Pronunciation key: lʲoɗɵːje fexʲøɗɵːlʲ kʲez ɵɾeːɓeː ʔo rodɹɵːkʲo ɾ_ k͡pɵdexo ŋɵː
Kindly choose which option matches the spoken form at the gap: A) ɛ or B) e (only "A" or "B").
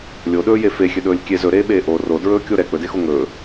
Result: A